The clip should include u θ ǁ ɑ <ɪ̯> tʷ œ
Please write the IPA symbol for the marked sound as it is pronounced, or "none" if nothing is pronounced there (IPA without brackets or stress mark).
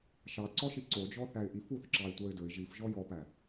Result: ɪ̯